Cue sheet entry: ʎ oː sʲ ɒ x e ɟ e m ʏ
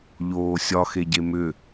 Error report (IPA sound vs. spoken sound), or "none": none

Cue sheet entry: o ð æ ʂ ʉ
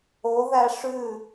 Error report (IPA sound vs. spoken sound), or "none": none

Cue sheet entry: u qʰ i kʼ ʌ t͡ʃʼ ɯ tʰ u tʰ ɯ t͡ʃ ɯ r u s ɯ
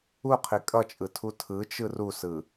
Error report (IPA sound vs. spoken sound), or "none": none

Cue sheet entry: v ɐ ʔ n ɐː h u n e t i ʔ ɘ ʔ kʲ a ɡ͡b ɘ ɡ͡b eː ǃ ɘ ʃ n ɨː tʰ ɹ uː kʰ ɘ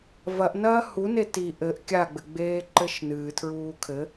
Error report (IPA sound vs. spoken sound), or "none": none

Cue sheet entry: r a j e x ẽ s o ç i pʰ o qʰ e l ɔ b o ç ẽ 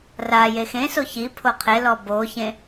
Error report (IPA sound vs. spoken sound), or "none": none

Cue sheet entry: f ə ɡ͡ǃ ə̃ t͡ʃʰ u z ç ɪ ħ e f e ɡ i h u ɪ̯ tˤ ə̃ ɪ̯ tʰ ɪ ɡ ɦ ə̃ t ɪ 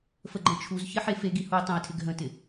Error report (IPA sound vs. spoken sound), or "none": none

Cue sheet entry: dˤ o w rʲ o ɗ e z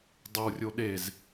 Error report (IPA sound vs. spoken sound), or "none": none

